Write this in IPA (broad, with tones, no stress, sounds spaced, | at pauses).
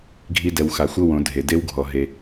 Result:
ɡʱ i˦ d ɛ˨ w x a˨ xʷ ɤ˦ w õ˨˦ dʱ e˨ d e˦ w ɡʱ ɔ˨ ɦ e˨